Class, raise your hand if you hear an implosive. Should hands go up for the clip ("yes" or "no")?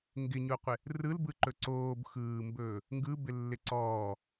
no